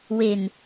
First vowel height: mid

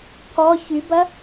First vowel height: mid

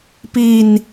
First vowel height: high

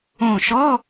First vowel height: mid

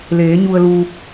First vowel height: mid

